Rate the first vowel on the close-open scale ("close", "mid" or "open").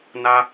open